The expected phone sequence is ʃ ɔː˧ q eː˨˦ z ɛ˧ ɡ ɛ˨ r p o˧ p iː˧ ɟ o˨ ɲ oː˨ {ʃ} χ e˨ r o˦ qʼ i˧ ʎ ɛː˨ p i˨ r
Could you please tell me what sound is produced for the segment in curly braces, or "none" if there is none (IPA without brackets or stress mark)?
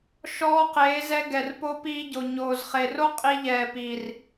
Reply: z